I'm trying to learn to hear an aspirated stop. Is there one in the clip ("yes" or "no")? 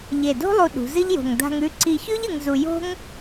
no